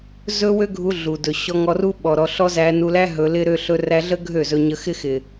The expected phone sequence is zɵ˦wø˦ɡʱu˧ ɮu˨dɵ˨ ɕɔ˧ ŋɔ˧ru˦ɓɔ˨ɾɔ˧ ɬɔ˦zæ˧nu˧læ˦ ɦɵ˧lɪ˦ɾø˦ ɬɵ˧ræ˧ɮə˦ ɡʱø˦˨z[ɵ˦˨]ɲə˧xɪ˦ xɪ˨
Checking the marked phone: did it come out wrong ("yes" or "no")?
yes